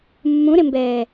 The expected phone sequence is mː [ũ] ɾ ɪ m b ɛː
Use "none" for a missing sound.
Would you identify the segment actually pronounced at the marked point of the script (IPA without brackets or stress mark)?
ũ